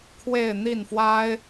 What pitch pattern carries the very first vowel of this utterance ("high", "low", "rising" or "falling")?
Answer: falling